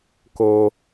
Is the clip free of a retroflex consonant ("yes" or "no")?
yes